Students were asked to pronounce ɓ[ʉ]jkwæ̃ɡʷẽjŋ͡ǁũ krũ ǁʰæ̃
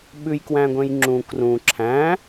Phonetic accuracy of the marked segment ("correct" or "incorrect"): correct